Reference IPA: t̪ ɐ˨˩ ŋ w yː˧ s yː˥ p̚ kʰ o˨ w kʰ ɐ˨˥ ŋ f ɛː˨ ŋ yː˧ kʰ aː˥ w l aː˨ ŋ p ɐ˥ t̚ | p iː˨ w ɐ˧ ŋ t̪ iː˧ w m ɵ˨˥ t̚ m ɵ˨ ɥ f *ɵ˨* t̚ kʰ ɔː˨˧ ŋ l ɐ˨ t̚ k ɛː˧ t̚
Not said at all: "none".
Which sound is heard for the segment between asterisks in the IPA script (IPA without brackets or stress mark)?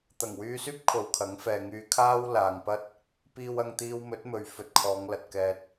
ɵ˨